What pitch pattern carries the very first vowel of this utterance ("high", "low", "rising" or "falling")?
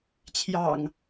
low